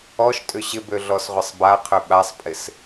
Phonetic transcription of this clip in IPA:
ɔ ʃ tʼ ʏ ɕ ɪ b ø ɮ ɔ s ʁʷ ə sˤ b a qʰ ø ɓ a sˤ pʼ ɪ s

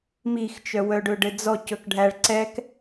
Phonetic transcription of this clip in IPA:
m i x t͡ʃ œ w œ ɖ ɵ ɖ ɘ d͡z ɔ c ɵ k ɖʱ æ ɭ ǀ ɛ k

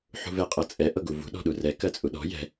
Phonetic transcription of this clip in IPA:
ħ ṳ v ɛ qʼ ɤ t͡sʼ ɛ ʔ ɤ ɡ u v ṳ ɗ ɔ̤ ɗ u r ɛ k ɜ t͡sʼ u ɗ ɔ̤ j ɛ̤

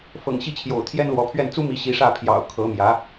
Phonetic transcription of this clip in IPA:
f ɤ̰˨˩ ŋ ɕ i˥˩ t͡ɕʰ j o̰˨˩ ʊ̯ t̪ʰ j ɛ˥ n l w ɔ˧˥ pʰ ɥ ɛ˥˩ n t͡s u˥ m i˧˥ ɕ i˧˥ ʂ ä˥˩ pʰ j ɑ̰˨˩ ʊ̯ kʰ ɤ˧˥ m j ä˧˥

